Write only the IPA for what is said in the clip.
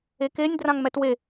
e k e nʲ d r ã ŋ m ɛ t w e

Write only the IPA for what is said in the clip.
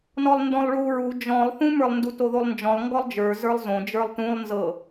n ɔ lˠ n d ɔ̃ lˠ ɭ u ɹ u d͡ʒ ɔ̃ lˠ θ ũ m ə˞ lˠ n d u t o ð o lˠ n d͡ʒ ɔ̃ lˠ ŋ ɡ ɔ lˠ d͡ʒ ə˞ z ə˞ lˠ z õ d͡ʒ ə˞ lˠ t ũ lˠ n z ɤ

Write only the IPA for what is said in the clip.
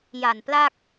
j a˨˩ n p l a˥˩ k̚

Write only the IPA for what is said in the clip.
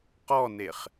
q ɔ n e χ

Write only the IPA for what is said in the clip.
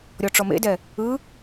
ɾʲ ɔ ʈ͡ʂ ɔ m ḛ d ɛ | ɯ

